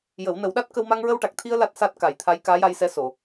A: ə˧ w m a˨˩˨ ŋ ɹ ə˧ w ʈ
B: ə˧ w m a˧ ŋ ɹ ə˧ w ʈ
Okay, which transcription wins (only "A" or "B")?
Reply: B